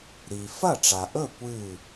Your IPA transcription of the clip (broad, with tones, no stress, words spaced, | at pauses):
ɾi˩ fɐ˥˩ʈ͡ʂa˩ʔɵ˥˩kʷɨː˧˩